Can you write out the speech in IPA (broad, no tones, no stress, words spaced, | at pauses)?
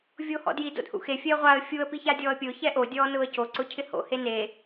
vʲoːhɔ̰dji do̰dhṵxe fʲɛə̯ʁʷaə̯ fʲuə̯ piçadʲɔːə̯pʲʊː çɛʔo dʲɔːnʊːə̯co ǀʊcʰɪho̰ hene